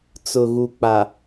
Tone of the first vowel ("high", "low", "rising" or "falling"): low